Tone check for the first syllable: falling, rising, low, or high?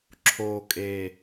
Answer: low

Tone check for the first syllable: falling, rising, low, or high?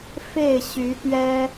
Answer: falling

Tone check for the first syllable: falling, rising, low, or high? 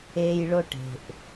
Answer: high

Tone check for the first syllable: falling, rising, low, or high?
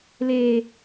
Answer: high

